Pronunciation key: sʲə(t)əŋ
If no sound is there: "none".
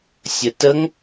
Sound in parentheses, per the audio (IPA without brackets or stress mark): t